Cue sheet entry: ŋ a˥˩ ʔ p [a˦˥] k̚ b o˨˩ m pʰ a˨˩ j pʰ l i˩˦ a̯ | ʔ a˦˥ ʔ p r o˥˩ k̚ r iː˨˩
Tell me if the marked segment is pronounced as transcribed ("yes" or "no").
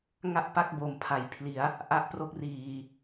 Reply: no